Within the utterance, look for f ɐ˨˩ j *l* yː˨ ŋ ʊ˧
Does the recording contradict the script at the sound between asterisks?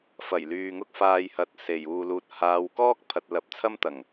no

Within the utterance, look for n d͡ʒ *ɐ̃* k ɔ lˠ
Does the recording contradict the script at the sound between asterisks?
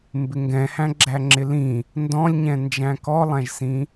yes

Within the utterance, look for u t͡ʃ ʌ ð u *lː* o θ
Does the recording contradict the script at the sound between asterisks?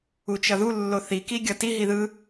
no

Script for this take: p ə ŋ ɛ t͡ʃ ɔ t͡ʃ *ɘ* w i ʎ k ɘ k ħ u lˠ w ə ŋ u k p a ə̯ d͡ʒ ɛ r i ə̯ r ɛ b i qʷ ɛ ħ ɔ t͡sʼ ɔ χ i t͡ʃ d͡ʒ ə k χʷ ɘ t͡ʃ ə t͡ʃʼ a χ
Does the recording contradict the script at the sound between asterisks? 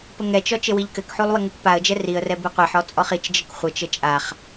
no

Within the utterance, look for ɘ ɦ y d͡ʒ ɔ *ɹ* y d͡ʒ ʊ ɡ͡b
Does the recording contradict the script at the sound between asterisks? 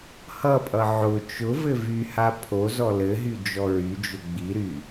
no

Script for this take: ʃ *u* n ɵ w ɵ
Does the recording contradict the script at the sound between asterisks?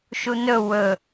no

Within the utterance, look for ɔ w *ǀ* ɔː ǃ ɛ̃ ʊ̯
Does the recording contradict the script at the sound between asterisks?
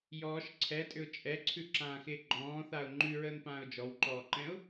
yes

